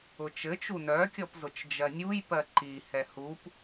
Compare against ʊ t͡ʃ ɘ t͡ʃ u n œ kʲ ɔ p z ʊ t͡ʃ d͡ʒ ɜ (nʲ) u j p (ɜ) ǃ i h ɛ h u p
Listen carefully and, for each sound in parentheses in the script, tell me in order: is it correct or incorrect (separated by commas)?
correct, correct